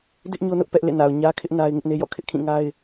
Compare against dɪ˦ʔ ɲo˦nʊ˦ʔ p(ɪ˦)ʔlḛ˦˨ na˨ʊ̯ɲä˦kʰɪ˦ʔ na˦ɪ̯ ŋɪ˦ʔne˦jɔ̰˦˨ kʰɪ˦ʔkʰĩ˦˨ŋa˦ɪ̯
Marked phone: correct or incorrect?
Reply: incorrect